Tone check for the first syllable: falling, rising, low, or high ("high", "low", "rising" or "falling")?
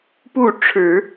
falling